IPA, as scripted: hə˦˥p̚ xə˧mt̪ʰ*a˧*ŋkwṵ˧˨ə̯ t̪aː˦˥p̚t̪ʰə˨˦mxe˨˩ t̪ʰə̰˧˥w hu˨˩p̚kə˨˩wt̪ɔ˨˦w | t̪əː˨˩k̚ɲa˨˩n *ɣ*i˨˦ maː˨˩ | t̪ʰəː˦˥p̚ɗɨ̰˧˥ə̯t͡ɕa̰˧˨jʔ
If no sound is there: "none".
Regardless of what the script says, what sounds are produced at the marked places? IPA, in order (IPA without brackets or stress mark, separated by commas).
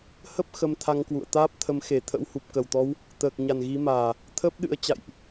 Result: a˧, ɣ